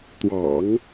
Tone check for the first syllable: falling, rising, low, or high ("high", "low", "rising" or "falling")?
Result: low